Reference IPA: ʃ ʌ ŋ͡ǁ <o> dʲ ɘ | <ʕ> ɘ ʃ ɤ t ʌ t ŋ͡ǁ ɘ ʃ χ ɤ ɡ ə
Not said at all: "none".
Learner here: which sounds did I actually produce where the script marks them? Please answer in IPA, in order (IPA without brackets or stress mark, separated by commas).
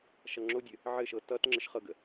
o, ʕ